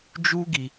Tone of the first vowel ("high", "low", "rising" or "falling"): high